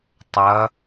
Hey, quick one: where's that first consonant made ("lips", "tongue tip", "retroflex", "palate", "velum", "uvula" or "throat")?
tongue tip